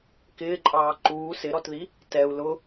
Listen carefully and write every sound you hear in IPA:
k ɪː ǃʼ ɑː ǃ uː s ɪ ɾ ɔ t ð i | t ɛ u̯ l ʊ

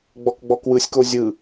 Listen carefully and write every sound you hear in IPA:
ɡ͡b ɔ k ɡ͡b ɔ k w ɯ sʲ k o zʲ ɯ

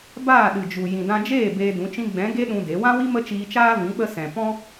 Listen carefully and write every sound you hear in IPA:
b aː˦˨ ɗ ɨ˨ d͡ʒ u˨ j ĩ˨ d ã˧ d͡ʒ eː˦˨ b eː˧ d ũ˨˦ t͡ʃ ĩ˧ ɡ͡b ɛ̃˨˦ ɡ e˦ ɗ ũ˧ d e˨˦ w ã˦ w i˦ m ə˦ t͡ʃ iː˧ t͡ʃ aː˦ v ĩ˨˦ ɓ ə˧ s ɛ̃˨ p ɔ̃˦

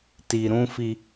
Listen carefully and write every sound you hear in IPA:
t i˨ ɾ ũ˦ f i˦

